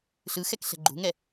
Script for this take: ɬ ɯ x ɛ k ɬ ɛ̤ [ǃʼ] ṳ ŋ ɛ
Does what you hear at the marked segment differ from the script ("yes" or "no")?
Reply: yes